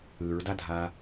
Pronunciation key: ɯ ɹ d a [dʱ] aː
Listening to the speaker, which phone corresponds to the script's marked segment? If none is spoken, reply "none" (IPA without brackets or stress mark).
dʱ